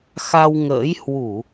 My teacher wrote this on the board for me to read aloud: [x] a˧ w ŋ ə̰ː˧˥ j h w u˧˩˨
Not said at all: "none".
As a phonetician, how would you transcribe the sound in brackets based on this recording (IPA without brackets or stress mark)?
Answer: x